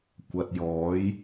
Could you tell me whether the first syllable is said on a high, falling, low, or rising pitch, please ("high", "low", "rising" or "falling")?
low